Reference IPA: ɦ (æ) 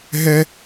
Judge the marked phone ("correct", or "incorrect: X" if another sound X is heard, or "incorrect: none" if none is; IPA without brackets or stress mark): incorrect: ɛ